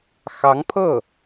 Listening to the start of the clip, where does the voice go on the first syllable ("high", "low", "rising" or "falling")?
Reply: rising